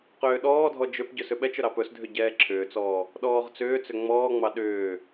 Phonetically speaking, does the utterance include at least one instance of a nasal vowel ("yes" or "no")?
no